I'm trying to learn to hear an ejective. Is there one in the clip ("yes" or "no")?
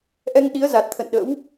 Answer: no